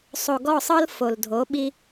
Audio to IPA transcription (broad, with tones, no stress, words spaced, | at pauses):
sˤo˨ɡɔ˦˨sˤɤ˦l fo˨l dʱo˨˦ɓi˦